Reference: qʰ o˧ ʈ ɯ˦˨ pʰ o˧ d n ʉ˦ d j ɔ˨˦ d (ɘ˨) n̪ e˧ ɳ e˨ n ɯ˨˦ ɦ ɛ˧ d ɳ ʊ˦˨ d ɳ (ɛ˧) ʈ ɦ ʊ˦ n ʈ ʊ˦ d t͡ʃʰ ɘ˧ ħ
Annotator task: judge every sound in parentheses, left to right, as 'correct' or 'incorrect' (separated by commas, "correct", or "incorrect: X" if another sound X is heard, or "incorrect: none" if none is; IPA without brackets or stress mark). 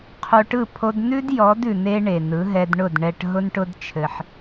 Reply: incorrect: ʉ˨, correct